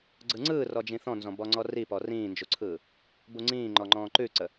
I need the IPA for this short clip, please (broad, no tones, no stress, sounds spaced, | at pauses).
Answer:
ɡ͡ǀ ɯ ŋ͡ǀ ɯː r ɔ d͡ʒ ĩ θ ɔ̃ n z ɔ̃ b ɔ ŋ͡ǀ ɔ r i p ɔ r ĩː n d͡ʒ u ǀʰ ɯː | b u ŋ͡ǀ ĩː ŋ͡ǃ ɔ ŋ͡ǃ ɔ̃ː ǃ ʉ ǀ ə